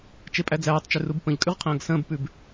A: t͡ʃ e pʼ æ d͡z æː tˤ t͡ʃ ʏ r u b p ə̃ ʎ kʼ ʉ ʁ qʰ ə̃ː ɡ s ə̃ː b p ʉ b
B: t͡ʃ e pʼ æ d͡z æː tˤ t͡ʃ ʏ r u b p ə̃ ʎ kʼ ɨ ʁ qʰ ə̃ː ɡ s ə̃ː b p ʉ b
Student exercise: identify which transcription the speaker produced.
A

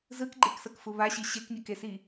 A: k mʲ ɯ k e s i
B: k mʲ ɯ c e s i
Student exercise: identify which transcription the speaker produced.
A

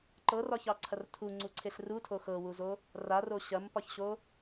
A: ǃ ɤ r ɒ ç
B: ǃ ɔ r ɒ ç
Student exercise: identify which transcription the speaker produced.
A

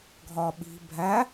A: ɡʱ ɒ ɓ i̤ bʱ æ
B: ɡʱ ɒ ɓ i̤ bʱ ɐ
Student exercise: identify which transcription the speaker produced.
A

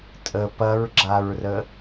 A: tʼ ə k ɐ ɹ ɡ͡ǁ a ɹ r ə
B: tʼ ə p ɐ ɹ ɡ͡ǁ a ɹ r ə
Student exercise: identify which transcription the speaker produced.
B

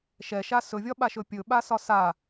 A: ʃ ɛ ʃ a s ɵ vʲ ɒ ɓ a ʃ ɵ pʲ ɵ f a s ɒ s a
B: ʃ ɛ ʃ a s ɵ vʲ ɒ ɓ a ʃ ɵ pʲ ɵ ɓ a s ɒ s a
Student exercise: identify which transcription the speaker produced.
B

